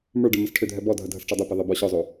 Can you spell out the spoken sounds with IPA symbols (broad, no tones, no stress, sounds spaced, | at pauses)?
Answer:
m ə˞ ɖ e m ə s ʈʰ ʏ dʱ ɛ b ɔ dʱ ə dʱ ə s ʈ͡ʂ ɔ dˤ ə˞ p e ðˤ ɛ b ɔ ɕ ɔ zˤ o